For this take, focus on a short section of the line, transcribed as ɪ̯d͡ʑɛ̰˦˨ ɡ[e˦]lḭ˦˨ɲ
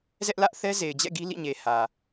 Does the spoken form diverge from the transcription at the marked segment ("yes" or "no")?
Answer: yes